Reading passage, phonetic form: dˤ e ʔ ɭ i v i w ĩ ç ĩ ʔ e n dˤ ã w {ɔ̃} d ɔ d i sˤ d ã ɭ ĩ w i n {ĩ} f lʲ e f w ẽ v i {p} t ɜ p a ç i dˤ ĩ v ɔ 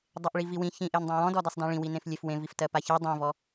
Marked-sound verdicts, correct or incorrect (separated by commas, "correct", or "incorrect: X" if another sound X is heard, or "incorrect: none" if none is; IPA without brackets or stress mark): correct, incorrect: ẽ, incorrect: f